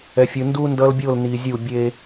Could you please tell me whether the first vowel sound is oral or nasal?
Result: oral